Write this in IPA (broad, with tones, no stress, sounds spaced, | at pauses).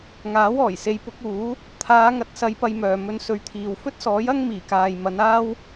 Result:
ŋ aː˨˥ w ɔː˨˩ j s e˨˧ j p ʊ˨˥ k̚ uː˨˥ | t̪ʰ aː˨˧ ŋ ɐ˨˥ t̚ s ɐ˨˧ j p ɐ˧ j m œː˨ m ɵ˧ n s ɵ˨˧ ɥ t̪ʰ iː˨ w f ɵ˥ t̚ s ɔː˨˥ j ɐ˥ ŋ m iː˨˩ k aː˨ j m ɐ˨˧ n aː˥ w